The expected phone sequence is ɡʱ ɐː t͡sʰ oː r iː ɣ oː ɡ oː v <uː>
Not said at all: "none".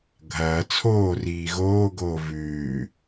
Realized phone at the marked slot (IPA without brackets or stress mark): ʉː